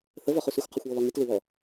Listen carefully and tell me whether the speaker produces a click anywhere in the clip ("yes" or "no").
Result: no